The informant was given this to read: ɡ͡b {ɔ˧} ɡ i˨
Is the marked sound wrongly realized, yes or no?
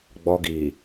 no